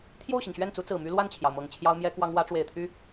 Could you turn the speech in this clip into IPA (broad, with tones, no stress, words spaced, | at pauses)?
t̪ʰjo˥˩ʊ̯ɕi˩ŋɕɥɛ˥˩nt͡su˧˥ t͡sɹ̩˨˩my˥ lwa˥˩nt͡ɕʰjɑ˩ʊ̯mɤ˨˩ŋ t͡ɕʰjɑ˥ʊ̯mjɛ˥kwɑ˥ŋ wä˧˥ʈ͡ʂwe˨˩ɪ̯t̪ʰy˥